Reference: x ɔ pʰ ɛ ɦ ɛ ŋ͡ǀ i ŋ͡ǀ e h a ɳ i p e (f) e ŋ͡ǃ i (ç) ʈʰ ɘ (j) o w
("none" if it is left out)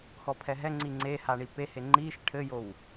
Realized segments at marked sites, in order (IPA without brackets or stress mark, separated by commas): h, ʃ, j